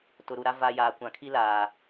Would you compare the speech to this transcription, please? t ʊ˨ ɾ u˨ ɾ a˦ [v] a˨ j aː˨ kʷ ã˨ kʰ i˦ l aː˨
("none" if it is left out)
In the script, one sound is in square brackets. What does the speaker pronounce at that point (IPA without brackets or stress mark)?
v